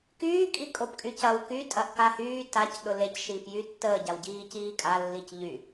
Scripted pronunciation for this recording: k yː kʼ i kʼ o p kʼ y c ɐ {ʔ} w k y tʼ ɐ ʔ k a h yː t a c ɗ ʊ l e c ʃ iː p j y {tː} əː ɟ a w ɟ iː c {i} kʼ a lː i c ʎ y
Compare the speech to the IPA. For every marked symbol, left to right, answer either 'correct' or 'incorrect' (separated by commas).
incorrect, correct, incorrect